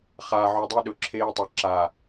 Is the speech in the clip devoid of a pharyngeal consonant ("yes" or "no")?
no